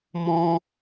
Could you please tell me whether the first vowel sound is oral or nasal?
nasal